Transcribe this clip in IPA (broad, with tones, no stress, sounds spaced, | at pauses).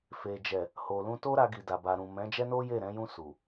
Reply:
f e˨ d͡ʒ ɛ˨ | h o˨ l ũ˧ t o˦ ɾ a˧ ɡ i˨ d a˨ b a˨ ɾ ũ˨ m ɛ̃˨˦ d͡ʒ ɛ˦ n o˦ j e˦˨ ɾ ɛ̃˨˦ j ũ˧ s u˨